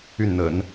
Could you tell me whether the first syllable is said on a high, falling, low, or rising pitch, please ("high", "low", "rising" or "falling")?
falling